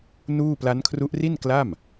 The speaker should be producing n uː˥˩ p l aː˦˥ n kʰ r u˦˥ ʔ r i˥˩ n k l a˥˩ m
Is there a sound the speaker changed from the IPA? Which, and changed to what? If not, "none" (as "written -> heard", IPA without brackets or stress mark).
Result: aː˦˥ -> a˦˥